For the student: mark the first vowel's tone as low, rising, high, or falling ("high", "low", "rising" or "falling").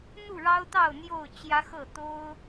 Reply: falling